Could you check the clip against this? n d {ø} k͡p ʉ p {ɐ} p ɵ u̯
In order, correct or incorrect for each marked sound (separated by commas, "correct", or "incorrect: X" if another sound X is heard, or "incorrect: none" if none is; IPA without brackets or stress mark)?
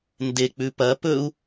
incorrect: e, correct